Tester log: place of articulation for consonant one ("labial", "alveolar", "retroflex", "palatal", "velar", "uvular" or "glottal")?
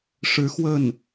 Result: retroflex